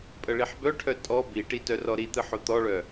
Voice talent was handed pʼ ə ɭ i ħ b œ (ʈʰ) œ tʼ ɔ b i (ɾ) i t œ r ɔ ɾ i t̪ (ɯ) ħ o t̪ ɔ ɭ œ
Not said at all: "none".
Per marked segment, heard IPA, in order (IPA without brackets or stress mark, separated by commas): ʈʰ, ʈ, ɯ